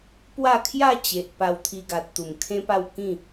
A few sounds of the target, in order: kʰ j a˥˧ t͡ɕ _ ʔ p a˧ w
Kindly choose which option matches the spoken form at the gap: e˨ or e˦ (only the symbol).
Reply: e˨